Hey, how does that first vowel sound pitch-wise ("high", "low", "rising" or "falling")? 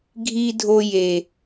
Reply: high